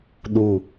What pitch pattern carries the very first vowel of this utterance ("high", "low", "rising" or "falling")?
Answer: low